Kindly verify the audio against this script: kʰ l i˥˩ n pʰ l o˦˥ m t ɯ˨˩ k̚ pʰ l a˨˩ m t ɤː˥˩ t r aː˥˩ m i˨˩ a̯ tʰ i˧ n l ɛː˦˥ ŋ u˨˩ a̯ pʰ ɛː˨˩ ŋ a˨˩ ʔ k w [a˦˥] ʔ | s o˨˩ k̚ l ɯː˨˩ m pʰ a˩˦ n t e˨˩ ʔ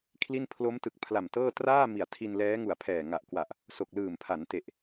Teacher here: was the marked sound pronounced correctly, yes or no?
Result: no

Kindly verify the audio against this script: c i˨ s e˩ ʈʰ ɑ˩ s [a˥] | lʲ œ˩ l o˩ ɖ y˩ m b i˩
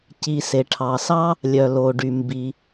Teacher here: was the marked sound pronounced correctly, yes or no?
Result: no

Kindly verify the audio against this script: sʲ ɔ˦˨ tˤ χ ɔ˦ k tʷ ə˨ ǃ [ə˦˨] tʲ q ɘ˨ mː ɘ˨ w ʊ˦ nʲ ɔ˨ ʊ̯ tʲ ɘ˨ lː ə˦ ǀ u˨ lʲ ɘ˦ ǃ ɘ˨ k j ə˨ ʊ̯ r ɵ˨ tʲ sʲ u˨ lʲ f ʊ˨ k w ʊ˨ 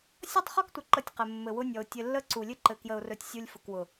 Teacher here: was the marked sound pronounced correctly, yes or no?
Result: yes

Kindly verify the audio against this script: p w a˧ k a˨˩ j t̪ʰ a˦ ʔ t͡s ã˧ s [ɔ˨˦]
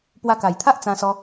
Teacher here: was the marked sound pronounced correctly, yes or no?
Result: no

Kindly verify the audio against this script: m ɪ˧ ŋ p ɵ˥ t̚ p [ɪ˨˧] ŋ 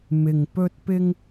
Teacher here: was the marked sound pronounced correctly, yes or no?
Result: no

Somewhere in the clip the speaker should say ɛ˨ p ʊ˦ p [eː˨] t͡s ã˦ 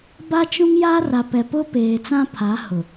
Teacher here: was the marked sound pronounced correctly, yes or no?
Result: yes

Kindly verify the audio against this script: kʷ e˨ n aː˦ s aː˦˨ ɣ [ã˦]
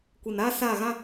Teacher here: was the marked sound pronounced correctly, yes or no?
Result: yes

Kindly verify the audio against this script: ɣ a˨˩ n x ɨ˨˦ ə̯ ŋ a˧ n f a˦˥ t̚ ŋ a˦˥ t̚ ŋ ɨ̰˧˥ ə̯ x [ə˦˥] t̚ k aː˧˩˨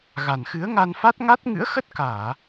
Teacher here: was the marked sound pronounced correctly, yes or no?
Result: yes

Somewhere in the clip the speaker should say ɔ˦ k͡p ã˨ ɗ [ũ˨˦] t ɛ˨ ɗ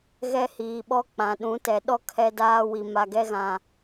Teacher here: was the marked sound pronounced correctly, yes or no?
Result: yes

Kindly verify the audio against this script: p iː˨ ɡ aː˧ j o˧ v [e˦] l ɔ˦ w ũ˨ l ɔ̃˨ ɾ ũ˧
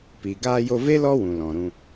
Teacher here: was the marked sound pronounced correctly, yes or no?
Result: yes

